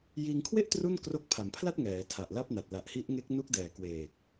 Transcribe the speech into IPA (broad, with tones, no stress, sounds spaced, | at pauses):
j iː˧ ŋ kʰ w e˥˩ ʔ t r u˥˩ n k r o˦˥ k̚ pʰ a˩˦ m pʰ l a˥˩ t̚ ŋ ɛː˩˦ tʰ a˨˩ ʔ l a˥˩ p̚ n a˨˩ t̚ l a˨˩ ʔ h i˦˥ ʔ ŋ e˦˥ k̚ n u˦˥ k̚ d ɛː˨˩ k w eː˨˩ k̚